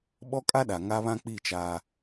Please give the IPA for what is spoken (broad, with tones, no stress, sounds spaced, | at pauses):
ɓ ɔ˦ kʼ a˦ ɗ a˨ ŋ a˦ β ã˦ k͡p i˦˨ t͡ʃ aː˦